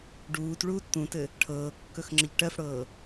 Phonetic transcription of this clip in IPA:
ɖuːt ɭuːtt̪ũtɘ | ʈʰɤːkːɵx ŋ͡ǁəʎʈɜfɽɤː

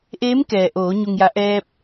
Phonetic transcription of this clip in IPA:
ʔeː˧˥mkɛː˩ʔoː˩˧ ɲu˩ŋja˩˧ ʔɛː˧p̚

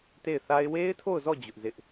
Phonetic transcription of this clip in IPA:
te˦˨ɪ̯θa˦ɪ̯ we˦ɪ̯tʰo˦˨ʊ̯zɔ˦˨ d͡ʑʊ˦ʔ zɪ˦ʔ

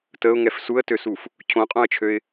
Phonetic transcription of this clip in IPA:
təʊ̯ŋɛf suə̯tøsuf | cʰõqʼõə̯t͡ʃʰøɪ̯

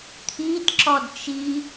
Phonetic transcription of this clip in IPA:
t̪ʰid ǁɔdt͡ʃi

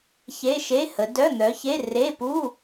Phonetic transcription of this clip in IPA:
çe˧˥˧ʃe˧˥˧hə˨˦ dœ˧˥˧n̪œ˨˦çe˧˥˧ re˧˥˧ pu˧˥˧

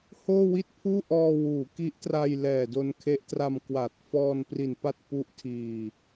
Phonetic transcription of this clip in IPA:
hoː˥˩wi˥˩t̚pʰuː˥˩ ʔɔː˧wuː˩˦ki˦˥ʔtra˧j lɛː˨˩do˧nkʰe˦˥ʔ tra˧mkwa˨˩t̚ fɔː˧npri˨˩npa˥˩t̚ pu˦˥ʔtʰiː˧

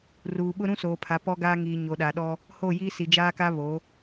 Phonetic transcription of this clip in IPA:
ruː˨ ɓʊ˦ɾũ˦soː˨pʰa˨ pɔ˦ɡaː˦ŋiː˨ ɲo˨ɗa˨ɗɔ˦ | ho˦˨ jiː˦ si˨d͡ʒaː˦ka˦ βo˨˦

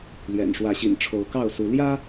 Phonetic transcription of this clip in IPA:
lɥɛ̰˨˩nʂwä˨˦ɕḭ˨˩nʈ͡ʂʰo˨˦ʊ̯ kɑ˥˨ʊ̯su˨˦ ljä˦

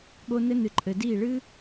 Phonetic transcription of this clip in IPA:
ɠo˧nɘ˧nɨ˨ǃʼɘ˨ di˦˨ ɭɨ˦

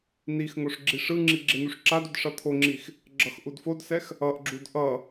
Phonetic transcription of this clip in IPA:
nixŋoʂ ɡ͡ǁiʂɯŋ͡ǁi ɡ͡ǁenuʂǁadud ʂʌt̪ʰoŋ͡ǁix | ɡ͡ǁʌxʔudfodsɛx | ʌʔɡ͡ǁud ʔʌ

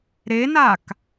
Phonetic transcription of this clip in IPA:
ɾenak

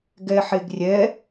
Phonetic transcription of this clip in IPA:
ɡɛħeɡrʲɛ

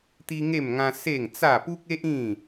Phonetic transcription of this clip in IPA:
t̪i˦ŋe˥˧mŋã˦ se˥˧ŋt͡sa˥˧ pu˦k̚e˦ʔĩ˥˧

